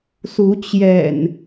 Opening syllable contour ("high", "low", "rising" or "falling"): rising